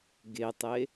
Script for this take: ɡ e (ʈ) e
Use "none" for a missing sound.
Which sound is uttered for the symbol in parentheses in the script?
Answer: tˤ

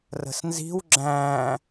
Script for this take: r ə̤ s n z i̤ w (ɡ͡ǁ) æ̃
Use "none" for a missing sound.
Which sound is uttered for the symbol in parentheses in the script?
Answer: ɡ͡ǁ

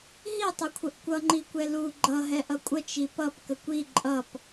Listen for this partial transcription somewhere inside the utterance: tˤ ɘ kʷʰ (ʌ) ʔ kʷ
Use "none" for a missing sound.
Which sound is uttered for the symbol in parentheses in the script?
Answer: ə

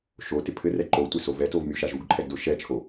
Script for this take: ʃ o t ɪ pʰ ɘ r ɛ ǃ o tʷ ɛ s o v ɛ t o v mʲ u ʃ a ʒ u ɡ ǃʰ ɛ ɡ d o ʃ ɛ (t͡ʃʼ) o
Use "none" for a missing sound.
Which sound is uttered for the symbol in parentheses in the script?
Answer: t͡ʃʰ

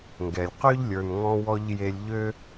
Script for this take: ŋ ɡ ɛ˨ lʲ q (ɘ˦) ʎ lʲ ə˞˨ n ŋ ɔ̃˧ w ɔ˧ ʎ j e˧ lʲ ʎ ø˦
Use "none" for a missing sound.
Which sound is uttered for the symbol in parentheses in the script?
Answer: ø˦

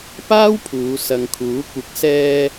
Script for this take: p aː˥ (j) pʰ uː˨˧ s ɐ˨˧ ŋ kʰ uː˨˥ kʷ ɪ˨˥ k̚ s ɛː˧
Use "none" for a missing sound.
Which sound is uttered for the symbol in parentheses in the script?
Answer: w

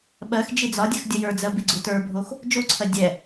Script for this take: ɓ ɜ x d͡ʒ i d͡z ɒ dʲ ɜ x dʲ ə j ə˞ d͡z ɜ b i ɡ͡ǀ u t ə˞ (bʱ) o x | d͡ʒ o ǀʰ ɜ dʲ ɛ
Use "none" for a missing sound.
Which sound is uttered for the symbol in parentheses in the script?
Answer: bʱ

